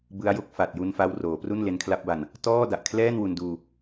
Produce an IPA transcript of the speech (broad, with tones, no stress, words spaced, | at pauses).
bɯ˦˥a̯jo˦˥k̚ fa˨˩t̚ju˧n fa˦˥wroː˩˦pru˥˩n le˦˥nkʰla˦˥p̚ba˧n | tɔː˥˩da˨˩ʔkʰlɛː˥˩n wu˧nduː˧